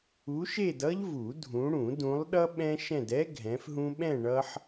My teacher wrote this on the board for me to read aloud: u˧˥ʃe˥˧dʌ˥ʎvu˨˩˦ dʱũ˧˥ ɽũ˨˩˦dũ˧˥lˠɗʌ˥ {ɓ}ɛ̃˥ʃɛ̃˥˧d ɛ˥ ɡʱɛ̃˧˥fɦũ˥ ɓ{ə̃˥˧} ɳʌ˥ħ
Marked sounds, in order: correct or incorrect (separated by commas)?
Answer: correct, incorrect